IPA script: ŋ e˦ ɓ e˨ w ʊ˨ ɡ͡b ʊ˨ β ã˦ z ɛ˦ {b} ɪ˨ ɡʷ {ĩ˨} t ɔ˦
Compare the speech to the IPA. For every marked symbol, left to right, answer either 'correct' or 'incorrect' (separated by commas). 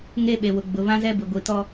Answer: correct, incorrect